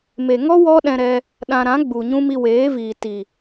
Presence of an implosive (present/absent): present